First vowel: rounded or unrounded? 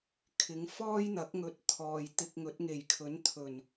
unrounded